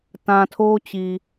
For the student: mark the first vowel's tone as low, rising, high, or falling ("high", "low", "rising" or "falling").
low